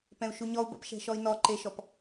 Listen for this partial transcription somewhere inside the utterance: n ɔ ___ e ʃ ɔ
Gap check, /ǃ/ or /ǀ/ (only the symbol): ǃ